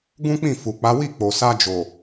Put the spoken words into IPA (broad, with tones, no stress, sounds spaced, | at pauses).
ɡ ũ˦ k͡p ĩ˦˨ f u˨ k͡p a˨˦ w i˦˨ k͡p o˨ s a˧ d͡ʒ o˨